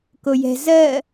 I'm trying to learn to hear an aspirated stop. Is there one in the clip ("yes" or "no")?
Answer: no